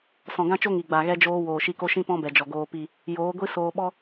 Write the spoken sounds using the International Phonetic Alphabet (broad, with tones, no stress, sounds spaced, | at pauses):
s ɔ̃˨ ɡ ã˦ t͡ʃ o˦ ŋ i˨ ɡ͡b a˨ ɣ ɛ˦ d͡ʒ oː˦ w oː˨ ʃ i˧ k o˦ ʃ ĩ˦ p ɔ̃˦ b ɛ˨ d͡ʒ ɔ˨ ɡ oː˧ p i˦˨ | j oː˨˦ ɡʷ i˦ s oː˧ ɓ ɔ˦